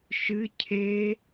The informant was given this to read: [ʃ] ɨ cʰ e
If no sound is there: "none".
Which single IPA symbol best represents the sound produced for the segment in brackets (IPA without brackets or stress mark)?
ʃ